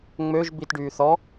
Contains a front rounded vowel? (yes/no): yes